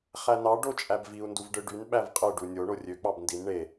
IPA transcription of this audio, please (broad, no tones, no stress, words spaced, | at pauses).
χænɑ ɖot͡ʃʼæbviu̯ nduvɖɯɖyn ɓævqʼɯ ɖunʲo ɳorʲø k͡pɑbndin ɳe